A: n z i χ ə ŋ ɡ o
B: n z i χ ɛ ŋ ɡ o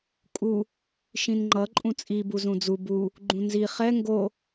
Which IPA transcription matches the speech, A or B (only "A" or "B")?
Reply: B